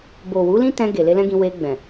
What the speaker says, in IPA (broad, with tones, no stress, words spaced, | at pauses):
bo˨ wu˨˦lĩ˦tɛ̃˧ ɡe˨le˧lɛ̃˦ɡĩ˧ we˧ɡ͡bɛ̃˨